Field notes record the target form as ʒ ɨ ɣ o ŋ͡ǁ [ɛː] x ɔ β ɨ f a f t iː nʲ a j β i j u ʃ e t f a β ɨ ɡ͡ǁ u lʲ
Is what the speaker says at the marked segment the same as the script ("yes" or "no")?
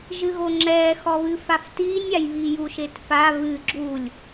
yes